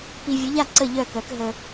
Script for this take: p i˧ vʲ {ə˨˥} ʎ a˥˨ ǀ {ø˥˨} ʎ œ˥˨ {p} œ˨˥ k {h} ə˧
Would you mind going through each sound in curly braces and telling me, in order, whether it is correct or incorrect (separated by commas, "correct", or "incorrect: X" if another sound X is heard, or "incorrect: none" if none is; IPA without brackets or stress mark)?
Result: correct, incorrect: ə˥˨, incorrect: k, incorrect: ɦ